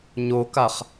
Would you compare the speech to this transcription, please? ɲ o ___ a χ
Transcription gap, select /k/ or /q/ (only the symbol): k